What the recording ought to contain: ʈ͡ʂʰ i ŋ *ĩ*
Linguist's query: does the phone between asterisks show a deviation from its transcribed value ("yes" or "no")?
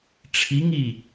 yes